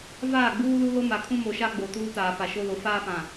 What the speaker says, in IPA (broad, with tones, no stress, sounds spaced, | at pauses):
v aː˦˨ ɡ͡b uː˦ l u˦ l o˦ m a˨ kʰ ũ˦ m o˨ ʃ a˦ ɡ͡b o˨ t uː˦ t aː˨ f a˨ ʃ o˦ l o˨ f aː˦ f ã˨